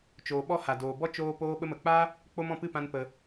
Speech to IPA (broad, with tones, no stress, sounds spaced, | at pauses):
t͡ʃ oː˨ ɓ ɔ˧ h a˨ d oː˨ b ɔ˦ t͡ʃ oː˧ p oː˧ ɓ ə˧ m ə˨ k͡p a˦ | k͡p o˧ m ɔ̃˨ p ɨ˦˨ p ã˧ n p ə˧